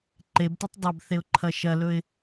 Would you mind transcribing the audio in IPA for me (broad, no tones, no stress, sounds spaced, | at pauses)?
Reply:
ǃ e b t u tˤ dˤ ɐ b θ e ʊ̯ ǃʰ ɐ ʃ ɐ l ɵ ɪ̯